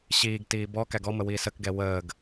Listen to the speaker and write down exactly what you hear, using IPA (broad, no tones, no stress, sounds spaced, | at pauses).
ɕ iː ɡ t iː b ɔ k æ ɡ ɔ m ə w iː s ə k ɡ ɛ w əː ɡ